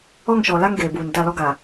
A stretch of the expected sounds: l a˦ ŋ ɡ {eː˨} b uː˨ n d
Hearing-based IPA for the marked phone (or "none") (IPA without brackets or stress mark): eː˨